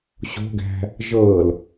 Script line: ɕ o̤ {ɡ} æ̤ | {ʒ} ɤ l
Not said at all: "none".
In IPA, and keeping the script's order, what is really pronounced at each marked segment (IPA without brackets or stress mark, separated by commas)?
ɡ, ʒ